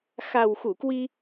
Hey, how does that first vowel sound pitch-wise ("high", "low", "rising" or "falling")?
low